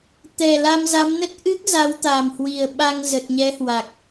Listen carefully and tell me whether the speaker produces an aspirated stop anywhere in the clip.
no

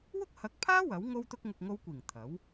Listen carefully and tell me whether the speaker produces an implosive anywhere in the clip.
no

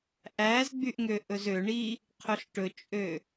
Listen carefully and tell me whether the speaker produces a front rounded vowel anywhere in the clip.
yes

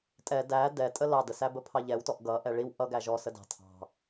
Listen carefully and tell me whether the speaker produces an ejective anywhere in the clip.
yes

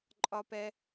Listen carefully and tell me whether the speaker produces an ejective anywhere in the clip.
yes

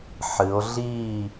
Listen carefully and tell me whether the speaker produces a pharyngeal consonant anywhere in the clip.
yes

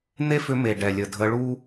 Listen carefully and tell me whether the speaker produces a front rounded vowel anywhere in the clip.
yes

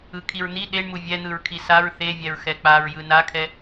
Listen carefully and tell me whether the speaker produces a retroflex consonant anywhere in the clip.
yes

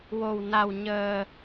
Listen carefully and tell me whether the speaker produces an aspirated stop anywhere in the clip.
no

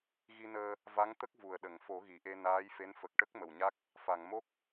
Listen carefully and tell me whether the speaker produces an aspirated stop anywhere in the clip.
no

